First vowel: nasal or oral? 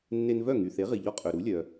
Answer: oral